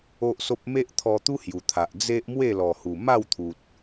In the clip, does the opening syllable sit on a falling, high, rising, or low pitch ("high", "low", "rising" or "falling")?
high